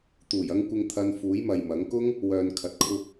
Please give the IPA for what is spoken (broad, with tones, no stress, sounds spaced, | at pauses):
t̪ uː˨˩ j ɐ˧ ŋ kʷ ɪ˨ ŋ t̪ʰ ɐ˧ n f uː˨˥ j m ɐ˨ j m ɐ˨˥ ŋ k ʊ˥ ŋ | w œː˨ n kʰ ɐ˨ t̚ kʰ ʊ˧ k̚